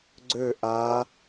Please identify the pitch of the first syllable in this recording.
falling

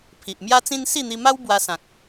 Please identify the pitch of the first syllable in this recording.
low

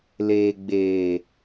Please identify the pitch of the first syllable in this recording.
low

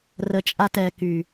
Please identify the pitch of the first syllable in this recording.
low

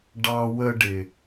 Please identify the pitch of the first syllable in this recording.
high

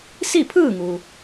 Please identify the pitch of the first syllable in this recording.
falling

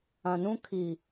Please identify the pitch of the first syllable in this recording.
low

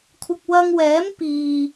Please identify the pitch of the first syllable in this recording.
low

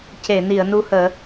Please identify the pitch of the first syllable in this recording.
low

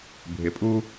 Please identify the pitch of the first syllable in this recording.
rising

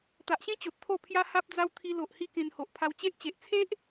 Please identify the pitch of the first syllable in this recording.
low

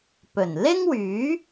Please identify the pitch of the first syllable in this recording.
low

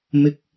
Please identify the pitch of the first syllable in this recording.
low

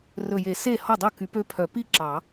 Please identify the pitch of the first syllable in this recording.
low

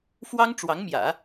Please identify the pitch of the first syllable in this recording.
high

